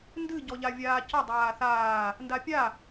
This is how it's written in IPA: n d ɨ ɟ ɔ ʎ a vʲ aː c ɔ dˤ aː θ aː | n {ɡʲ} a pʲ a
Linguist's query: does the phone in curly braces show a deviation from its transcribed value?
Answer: yes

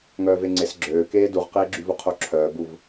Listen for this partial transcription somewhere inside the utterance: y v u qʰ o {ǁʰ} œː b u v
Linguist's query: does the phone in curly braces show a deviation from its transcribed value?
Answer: no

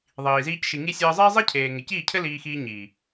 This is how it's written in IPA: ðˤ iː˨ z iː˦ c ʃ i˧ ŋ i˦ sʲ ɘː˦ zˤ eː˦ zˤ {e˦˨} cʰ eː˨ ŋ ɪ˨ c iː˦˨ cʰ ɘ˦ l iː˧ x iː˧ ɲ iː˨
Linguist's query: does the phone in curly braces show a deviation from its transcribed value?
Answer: yes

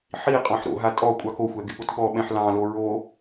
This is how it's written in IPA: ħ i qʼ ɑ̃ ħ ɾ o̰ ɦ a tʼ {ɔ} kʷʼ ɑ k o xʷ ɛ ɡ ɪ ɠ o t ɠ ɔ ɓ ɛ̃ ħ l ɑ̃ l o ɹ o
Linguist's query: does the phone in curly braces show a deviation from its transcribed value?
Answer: no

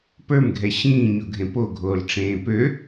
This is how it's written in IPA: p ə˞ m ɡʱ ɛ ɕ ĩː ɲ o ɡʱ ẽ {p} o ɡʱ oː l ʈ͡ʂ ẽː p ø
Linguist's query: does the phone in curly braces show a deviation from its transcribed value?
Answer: no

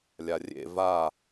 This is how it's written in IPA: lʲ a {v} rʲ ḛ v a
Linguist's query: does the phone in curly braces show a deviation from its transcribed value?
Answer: yes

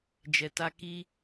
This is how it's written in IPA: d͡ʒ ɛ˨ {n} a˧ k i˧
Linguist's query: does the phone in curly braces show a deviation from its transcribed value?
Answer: yes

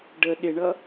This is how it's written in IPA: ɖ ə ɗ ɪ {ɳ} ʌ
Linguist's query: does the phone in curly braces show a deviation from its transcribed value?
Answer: no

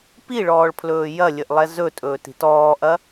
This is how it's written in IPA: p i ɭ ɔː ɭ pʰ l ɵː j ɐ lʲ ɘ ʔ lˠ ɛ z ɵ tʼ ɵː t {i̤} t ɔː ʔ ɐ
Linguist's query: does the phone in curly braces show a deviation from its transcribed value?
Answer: no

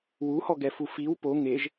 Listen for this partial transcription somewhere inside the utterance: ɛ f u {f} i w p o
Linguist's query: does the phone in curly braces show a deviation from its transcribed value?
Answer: no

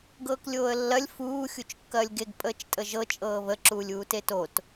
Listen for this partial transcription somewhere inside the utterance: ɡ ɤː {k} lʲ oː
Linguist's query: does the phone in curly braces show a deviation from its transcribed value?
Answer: no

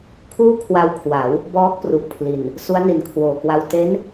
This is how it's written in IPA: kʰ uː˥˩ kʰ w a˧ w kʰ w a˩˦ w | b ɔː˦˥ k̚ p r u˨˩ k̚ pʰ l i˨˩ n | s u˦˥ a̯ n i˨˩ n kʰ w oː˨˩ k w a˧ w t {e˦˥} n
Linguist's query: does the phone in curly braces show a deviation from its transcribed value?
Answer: no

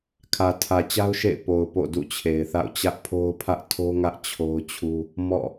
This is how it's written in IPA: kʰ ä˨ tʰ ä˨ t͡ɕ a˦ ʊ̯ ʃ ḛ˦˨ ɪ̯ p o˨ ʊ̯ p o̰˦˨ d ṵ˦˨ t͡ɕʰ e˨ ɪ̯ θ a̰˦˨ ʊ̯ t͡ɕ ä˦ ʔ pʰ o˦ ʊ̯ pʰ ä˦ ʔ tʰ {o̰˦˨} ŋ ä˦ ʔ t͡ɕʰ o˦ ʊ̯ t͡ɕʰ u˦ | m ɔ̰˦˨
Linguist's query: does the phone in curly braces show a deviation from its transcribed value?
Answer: yes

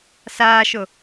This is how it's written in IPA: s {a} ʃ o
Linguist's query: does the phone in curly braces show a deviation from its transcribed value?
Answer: yes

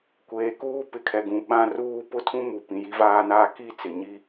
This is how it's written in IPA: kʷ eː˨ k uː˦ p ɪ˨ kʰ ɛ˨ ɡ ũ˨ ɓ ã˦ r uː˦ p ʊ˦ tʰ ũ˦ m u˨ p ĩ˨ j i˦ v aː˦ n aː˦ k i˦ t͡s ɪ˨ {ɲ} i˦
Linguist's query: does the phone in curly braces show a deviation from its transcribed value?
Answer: no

